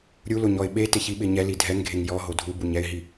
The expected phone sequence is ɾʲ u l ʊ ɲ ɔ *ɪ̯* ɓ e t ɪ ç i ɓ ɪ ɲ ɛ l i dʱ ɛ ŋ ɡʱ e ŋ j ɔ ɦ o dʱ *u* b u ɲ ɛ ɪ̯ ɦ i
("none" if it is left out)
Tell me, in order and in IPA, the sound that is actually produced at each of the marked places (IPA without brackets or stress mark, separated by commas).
ɪ̯, u